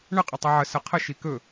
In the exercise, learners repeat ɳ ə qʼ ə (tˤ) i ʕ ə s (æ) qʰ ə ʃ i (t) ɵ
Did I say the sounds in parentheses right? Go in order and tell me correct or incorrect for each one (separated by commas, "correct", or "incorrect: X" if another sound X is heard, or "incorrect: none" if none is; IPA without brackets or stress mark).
correct, incorrect: ə, incorrect: k